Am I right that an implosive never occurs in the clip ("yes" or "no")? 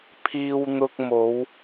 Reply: yes